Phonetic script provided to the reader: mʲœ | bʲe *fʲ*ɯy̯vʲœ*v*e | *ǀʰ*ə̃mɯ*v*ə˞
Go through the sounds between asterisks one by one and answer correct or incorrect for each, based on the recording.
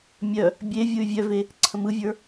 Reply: incorrect, correct, correct, incorrect

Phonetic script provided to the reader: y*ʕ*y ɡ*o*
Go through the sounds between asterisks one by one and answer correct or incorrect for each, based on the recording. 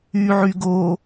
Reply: correct, correct

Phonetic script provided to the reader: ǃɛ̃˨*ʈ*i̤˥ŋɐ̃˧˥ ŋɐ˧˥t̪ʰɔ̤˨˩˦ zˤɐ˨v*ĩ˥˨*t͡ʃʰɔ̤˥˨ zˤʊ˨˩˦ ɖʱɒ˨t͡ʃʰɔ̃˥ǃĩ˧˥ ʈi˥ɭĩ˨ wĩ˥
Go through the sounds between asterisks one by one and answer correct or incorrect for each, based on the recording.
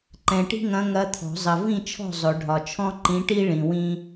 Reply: correct, correct

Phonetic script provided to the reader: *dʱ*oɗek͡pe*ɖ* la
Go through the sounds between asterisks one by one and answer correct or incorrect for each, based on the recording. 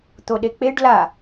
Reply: incorrect, correct

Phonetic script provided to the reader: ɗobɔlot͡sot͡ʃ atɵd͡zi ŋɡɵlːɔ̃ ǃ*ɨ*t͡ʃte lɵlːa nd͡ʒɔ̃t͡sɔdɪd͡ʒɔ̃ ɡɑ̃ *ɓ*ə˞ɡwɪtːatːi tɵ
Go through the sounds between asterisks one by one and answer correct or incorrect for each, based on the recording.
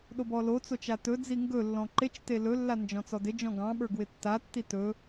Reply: incorrect, correct

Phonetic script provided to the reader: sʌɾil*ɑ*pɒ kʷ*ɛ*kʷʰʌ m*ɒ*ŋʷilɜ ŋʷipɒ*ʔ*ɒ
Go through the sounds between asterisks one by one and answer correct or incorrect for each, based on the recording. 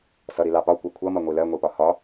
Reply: correct, incorrect, incorrect, incorrect

